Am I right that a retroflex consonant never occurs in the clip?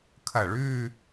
no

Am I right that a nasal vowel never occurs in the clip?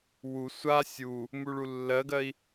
yes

